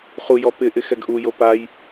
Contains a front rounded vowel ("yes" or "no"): no